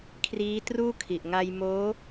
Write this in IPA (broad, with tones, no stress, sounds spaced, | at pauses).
kʰ r iː˦˥ t r uː˥˩ kʰ i˨˩ ʔ ŋ a˧ j m oː˦˥